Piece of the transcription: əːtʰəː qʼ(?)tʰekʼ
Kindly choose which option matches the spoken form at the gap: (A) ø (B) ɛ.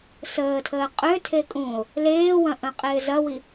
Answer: A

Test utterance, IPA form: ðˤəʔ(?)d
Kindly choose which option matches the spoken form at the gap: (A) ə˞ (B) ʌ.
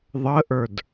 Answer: A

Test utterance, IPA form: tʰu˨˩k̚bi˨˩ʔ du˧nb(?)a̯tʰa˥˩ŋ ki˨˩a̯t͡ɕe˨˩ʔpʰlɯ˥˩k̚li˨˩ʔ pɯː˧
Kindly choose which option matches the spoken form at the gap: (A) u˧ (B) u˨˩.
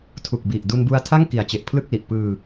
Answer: A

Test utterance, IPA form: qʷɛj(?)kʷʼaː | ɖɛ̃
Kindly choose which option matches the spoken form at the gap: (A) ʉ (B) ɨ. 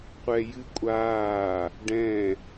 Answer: B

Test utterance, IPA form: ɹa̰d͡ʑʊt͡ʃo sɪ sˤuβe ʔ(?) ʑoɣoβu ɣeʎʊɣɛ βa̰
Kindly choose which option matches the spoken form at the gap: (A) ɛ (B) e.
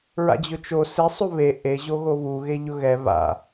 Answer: B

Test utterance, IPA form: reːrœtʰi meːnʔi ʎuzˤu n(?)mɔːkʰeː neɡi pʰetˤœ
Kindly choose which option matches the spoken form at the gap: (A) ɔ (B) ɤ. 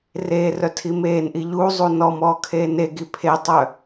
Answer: A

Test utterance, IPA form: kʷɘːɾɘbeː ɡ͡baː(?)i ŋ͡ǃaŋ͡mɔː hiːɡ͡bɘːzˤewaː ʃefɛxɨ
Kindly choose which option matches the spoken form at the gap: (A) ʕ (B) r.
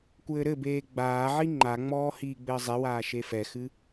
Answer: A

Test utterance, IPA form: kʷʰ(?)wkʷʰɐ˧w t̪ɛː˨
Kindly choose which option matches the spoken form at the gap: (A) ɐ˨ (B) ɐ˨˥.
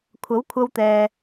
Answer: B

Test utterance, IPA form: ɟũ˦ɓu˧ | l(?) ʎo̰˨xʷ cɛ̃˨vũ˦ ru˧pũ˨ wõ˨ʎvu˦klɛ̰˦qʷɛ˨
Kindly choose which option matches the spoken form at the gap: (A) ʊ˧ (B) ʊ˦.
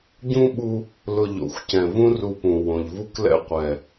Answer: A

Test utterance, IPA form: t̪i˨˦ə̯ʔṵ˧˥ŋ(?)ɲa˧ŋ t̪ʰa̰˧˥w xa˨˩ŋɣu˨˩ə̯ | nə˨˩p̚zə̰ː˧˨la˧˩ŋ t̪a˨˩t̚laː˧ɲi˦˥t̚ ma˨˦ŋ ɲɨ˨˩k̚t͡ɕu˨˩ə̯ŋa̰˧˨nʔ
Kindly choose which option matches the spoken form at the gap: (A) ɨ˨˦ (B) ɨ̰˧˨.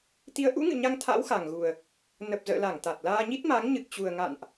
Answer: B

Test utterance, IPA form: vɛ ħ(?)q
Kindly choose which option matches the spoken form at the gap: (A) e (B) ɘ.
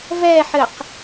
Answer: B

